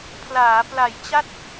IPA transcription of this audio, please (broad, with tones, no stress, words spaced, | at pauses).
pʰlaː˩˦pla˨˩jt͡ɕa˥˩t̚